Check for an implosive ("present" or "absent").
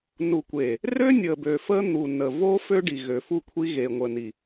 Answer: absent